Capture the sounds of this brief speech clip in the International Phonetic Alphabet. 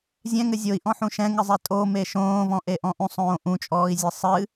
zʲɛ̃ŋɘ zʲoi̯ʔɔ̃ħũ ʃɛ̃ŋɨzˤe tʼome ʃõːvɔ̃ʔeʔɔ̃ ʔũsˤõː ʔũt͡ʃʼɔːi̯zʲɨ sˤɨ

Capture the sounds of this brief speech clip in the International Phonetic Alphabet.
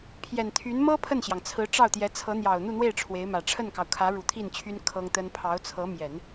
pʰjɛ˨˩nt̪ʰy˧˥n mɤ˥ pʰə˥˩nɕjɑ˩ŋ t͡sʰɹ̩˧˥ʈ͡ʂɑ˥˩ʊ̯t̪jɛ˧˥ t͡sʰɤ˧˥n̪jɑ˨˩ʊ̯ n̪u˥˧n̪we˥˩ɪ̯ ʈ͡ʂʰwe˧˥ɪ̯mä˨˩ ʈ͡ʂʰə˥˩nkɑ˩ʊ̯kʰä˧˥ ɻu˨˩t̪ʰi˥˩nt͡ɕʰy˥n kʰɤ˥ŋt̪ə˥n pʰɑ˧˥ʊ̯t͡sʰɤ˧˥ mjɛ˨˩˦n

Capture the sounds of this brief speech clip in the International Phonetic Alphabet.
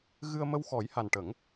ɣɨ˧ə̯mə˧wxɔ˨˩˦j ha˨˩nʈə˨˩˦ŋ

